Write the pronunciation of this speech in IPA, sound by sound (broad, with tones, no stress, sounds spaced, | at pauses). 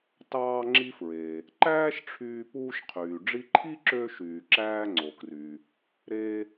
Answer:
t ɑː˧ ŋ͡ǁ i˧ f ɹ e˩ | ǃ æː˥ ʃ ʈ͡ʂʰ yː˧ p uː˧ ʃ qʰ yː˩ ɖ͡ʐ i˧ ǃʰ i˥ ǁ ø˧ ʃ yː˩ ǁ æː˧ ŋ͡ǀ o˩ k r y˩ | ɾ e˧